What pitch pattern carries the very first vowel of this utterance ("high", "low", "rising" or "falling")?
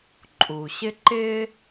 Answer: low